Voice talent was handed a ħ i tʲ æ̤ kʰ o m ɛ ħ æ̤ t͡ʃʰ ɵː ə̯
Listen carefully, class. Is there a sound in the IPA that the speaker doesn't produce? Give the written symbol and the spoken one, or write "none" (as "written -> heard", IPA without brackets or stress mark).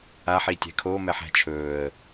none